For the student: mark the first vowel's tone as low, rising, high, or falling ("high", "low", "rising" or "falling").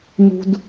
high